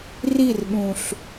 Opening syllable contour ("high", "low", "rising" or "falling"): falling